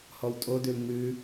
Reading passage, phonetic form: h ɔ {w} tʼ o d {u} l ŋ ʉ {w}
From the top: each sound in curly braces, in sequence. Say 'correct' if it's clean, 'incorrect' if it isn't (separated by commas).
correct, incorrect, incorrect